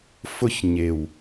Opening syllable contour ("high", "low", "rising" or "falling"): high